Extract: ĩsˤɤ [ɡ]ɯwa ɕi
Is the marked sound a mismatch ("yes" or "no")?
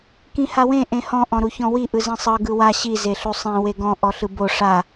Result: no